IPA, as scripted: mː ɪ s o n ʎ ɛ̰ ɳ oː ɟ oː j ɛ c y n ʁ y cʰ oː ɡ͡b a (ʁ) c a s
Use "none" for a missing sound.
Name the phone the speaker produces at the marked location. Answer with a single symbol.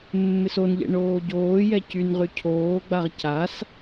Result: ʁ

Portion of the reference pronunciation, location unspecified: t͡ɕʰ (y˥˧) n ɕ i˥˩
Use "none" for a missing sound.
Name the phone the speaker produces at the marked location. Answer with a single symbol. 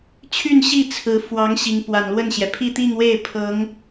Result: y˥˧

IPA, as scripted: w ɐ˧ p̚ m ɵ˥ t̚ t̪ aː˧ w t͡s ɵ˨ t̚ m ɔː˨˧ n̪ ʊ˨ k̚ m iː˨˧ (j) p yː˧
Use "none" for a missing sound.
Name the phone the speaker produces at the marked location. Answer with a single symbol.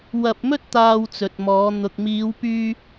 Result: w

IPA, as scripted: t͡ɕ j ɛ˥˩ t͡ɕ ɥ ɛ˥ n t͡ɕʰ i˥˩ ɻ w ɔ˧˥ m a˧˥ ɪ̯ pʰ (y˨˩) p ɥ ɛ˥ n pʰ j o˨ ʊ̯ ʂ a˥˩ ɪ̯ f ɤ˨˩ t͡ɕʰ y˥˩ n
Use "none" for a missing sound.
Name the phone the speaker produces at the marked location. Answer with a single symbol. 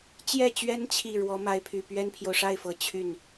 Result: y˨˩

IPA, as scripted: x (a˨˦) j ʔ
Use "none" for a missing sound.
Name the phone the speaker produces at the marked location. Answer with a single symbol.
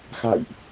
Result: a̰˧˨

